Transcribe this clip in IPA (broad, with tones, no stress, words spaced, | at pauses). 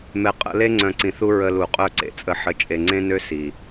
mɛ˨qʼə̰˧le˦ŋ͡ǀœ̃˨ ǀĩ˨θu˦ ɹə˧lu˨ qʼœ˦˨ǀḛ˨t͡sʼə˧ ħə˨t͡ʃʼe˨ŋ͡ǀẽ˦nø˦ si˨